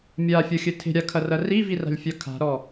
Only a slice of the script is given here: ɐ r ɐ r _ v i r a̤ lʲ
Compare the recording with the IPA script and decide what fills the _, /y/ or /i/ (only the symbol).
i